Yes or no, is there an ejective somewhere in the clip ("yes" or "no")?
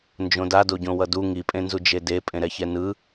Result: yes